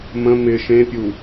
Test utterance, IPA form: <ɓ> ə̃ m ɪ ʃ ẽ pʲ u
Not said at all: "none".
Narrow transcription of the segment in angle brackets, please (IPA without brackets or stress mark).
m